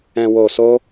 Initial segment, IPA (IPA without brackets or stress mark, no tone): ɛ̃